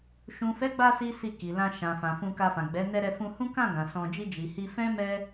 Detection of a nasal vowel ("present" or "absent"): present